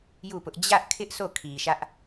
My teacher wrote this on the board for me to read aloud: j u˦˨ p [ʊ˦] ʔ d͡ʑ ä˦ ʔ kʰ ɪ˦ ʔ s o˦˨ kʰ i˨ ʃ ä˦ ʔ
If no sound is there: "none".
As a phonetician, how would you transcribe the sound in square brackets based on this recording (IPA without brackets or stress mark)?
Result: ʊ˦